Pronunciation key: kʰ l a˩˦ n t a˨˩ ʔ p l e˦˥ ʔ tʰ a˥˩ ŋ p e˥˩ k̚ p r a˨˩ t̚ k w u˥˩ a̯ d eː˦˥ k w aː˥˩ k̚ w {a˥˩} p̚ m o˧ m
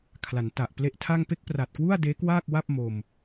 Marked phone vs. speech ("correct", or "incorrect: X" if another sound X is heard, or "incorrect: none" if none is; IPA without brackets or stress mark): correct